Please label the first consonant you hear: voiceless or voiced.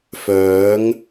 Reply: voiceless